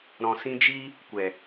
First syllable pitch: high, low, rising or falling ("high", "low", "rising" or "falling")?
low